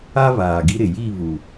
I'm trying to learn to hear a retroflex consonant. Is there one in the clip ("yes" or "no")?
no